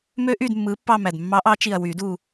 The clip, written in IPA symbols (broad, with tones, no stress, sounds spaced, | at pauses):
m ø˦˥ ʔ yː˦˨ d mː ɯː˨˦ pː ɑ˦˨ m æ˨˩ d mː ɑ˨˦ ʔ ɑ˨˦ t͡ʃ i˨˩ ɐ̯ w yː˨˩˦ d u˦˨